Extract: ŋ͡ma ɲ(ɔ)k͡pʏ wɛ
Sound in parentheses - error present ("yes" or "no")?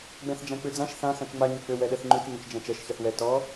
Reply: yes